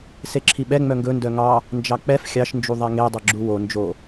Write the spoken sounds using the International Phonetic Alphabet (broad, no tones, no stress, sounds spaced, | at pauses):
s e ǁʰ i ɓ ɛ ŋ͡m œ ŋ ɡ ɵ n d œ ŋ ɑ | n d͡ʒ ɑ k͡p ɛ f xʲ ɑ ʃ n d͡ʒ u ðˤ ɛ ŋ e dˤ e ɡ͡ǁ u w o n d͡ʒ o